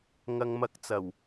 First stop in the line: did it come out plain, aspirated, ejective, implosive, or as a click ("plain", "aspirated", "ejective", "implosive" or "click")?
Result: plain